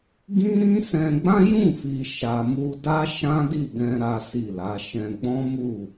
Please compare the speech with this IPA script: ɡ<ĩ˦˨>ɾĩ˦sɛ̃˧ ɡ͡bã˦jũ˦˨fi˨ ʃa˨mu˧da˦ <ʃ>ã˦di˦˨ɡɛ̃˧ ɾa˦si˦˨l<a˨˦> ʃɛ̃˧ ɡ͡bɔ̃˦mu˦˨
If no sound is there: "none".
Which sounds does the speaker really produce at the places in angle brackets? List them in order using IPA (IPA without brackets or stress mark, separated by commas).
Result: ĩ˦, ʃ, a˨˦